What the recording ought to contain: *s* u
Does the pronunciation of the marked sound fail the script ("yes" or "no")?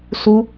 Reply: no